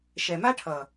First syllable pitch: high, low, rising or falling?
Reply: low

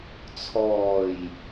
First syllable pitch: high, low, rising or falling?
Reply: low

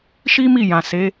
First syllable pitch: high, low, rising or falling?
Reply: high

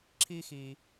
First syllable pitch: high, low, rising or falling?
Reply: high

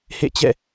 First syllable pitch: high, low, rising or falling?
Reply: falling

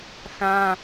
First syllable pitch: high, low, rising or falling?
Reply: high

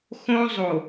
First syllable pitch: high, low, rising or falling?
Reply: high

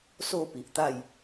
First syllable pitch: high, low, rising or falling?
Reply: falling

